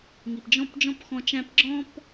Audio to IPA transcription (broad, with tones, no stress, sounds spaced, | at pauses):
ŋ i˨ p d͡ʒ ɔ̃˦˨ p d͡ʒ ɔ̃˦ p x ɔ̃˧ t͡ʃ æ̃˧ p ɡ͡ǁ ɔ̃ː˦ p